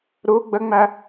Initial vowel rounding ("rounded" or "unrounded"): rounded